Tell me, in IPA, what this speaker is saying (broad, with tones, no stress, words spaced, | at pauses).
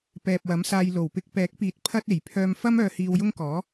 pɛː˨p̚wɐ˨˥msaː˧j lo˨˩wpɪ˧k̚pɛː˨˥k̚piː˨˥t̚ pʰɐ˥t̚e˨˩j pʰœː˧mfɐ˥m œː˧hiː˧wjʊ˥ŋkɔː˨˥